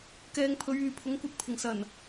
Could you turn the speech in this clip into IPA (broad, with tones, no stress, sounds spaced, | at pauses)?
k ɛː˨˧ ŋ pʰ ɵ˨˧ ɥ yː˨ pʰ ʊ˨˥ ŋ kʷ ɐ˧ t̚ pʰ ɪ˨˩ ŋ s ɐ˨˩ n